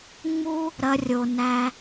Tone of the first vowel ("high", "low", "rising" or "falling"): high